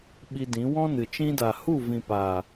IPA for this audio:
ɓ i˧ d ĩ˨˦ w ɔ̃˦ n ɨ˨ t͡ʃ ĩ˧ d a˨ h u˦˨ v ĩ˨ p aː˨

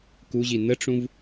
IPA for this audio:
k u ʑ i n ə ʈ͡ʂ ũ v

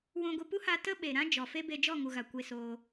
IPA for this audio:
w ũ˧ ɡʷ i˧ p u˦ h a˧ t ə˦ ɓ e˨ ɾ ã˦ d͡ʒ ɔ˨ f e˦ b e˧ d͡ʒ ɔ˦˨ ŋ u˨ ɣ a˨ kʷ e˧ s oː˧

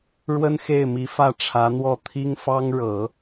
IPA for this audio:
ɻ w ə˥ n x e˥˩ ɪ̯ m i˧˥ f ä˥˩ ʈ͡ʂʰ ä˧˥ n̪ w ɔ˥˩ t̪ʰ i˥ ŋ f ɑ˥ ŋ ɻ ɤ˨˩˦

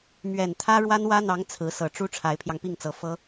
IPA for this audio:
m ɥ ɛ˨˩ n t̪ʰ ä˥ ɻ w a˥ n w ä˥ n̪ ɑ˧˥ ŋ t͡sʰ ɹ̩˧˥ s ɤ˨˩ ʈ͡ʂ u˥ ʈ͡ʂʰ a˧˥ ɪ̯ pʰ j ɑ˧ ŋ p i˥˩ ŋ t͡s ɤ˧˥ f ɤ˥

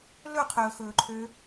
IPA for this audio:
l ɵ qʰ ɵː x ɵː ǃʰ ø

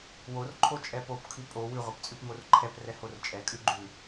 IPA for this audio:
w o r ǃʰ o t͡ʃʼ ɛ p o p kʰ ʉ pʼ o w ʉ ʁʷ ɛ p t͡sʼ ʉ p m o r ǃʰ ɛ p r ɛ h o r t͡ʃʼ ɛ kʼ ʉ ɡ͡ǃ ʉ

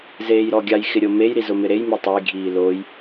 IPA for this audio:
z eː j ɾ ɔ ɡʲ a j x ɪ ɾʲ o m e j ɾ i z ʊ m ɪ ɾ e j m e tˤ e j ɡʱ iː l o j

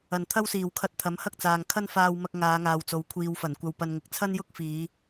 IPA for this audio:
ɐ˨˩ n t̪ʰ ɐ˥ w s iː˨˩ w kʰ ɐ˧ t̚ t̪ʰ ɐ˨˥ m h ɐ˥ k̚ t͡s aː˨ ŋ kʰ ɐ˥ n f aː˧ w m ɐ˧ k̚ ŋ aː˨˧ ŋ aː˨ w t͡s o˨˥ w kʷʰ iː˨ w f ɐ˨˩ n kʷ ɐ˧ w p ɐ˧ n ŋ ɪ˨ k̚ t͡sʰ ɐ˥ n j ʊ˥ k̚ f iː˨˧

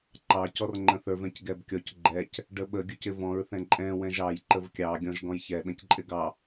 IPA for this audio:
ǃ ɑ c ɔ r ŋ͡ǃ ə̃ θ ə˞ v ɛ̃ c ɡ ɛ b kʲ ɔ c ɡ͡ǃ ɛ c | ɖ ə ɓ ə ɡʲ ʊ c ɪ v ɔ̃ ɹ θ ɛ̃ ǃʼ ɛ̃ w ɛ̃ ʒ ɑ j ǃ ə v kʲ ɑ ɡʲ ɔ̃ ʒ ɡ ɔ̃ j ç ɛ ɗ ə̃ c ǃʼ ɪ ɡ ɑ

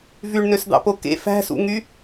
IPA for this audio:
v y ɳ n ø s d̪ ɑ̰ p o k ḛ f æ̤ s ṵ ŋ y

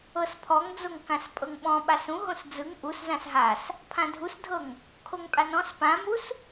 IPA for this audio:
ɤ s pʰ ɔ ŋ d͡z o ŋ k ã s pʼ ɤ ŋ ɓ ɔ̃ ɓ a s ũ ɦ õ s d͡z ɯ ŋ ʔ u s z ã s ɦ a s | pʰ ã dʱ u s dʱ ɤ ŋ | kʰ o ŋ pʼ a n ɔ̃ s p ã m u s

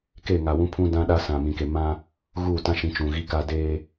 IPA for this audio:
k e˦˨ ŋ a˨ w ũ˦ pʰ ũ˦ d ã˦ ɗ a˦ s ã˨ m ĩ˨ k e˨ m ã˦ | ɣ uː˦˨ t ã˦ ʃ ĩ˨˦ t͡ʃ ũ˨ ɣ i˦ k a˦ d eː˦

